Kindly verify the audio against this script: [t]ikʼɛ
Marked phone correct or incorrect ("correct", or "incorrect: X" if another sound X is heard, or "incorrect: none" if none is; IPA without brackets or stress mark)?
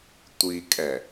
incorrect: tʷ